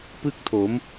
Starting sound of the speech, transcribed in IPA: p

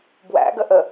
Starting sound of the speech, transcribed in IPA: b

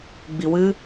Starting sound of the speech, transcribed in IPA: ɡ͡b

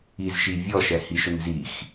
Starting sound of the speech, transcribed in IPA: i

